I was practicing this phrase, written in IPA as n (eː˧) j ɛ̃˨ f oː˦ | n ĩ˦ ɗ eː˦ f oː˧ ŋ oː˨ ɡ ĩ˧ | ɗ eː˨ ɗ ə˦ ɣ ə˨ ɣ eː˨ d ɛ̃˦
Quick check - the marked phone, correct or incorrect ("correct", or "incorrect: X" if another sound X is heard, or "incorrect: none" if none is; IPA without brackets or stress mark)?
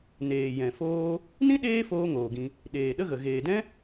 incorrect: eː˨